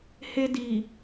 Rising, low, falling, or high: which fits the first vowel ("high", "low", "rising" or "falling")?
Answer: high